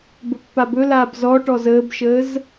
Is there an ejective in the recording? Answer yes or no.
no